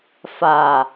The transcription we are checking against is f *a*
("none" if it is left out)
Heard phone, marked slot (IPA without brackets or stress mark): a